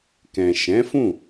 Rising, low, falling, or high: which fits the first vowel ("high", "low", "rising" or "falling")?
low